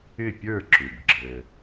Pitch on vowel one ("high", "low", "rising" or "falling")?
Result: falling